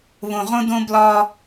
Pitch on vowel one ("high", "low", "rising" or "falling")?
low